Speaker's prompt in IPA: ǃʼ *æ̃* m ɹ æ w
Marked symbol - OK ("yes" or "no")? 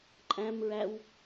yes